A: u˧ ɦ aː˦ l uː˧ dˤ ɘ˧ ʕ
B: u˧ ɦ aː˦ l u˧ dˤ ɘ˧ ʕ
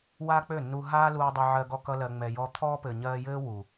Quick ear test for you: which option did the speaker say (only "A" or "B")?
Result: A